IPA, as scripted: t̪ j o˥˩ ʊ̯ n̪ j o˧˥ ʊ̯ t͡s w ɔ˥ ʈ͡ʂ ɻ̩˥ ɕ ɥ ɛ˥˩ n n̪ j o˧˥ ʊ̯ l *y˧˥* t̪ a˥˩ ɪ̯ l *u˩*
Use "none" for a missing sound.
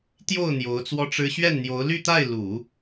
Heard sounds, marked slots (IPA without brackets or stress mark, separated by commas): y˥˧, u˨˩˦